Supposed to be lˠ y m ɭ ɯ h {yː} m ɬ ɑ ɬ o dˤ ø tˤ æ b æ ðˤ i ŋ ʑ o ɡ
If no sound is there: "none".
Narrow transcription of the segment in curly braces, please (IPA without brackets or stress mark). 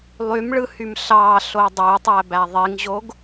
y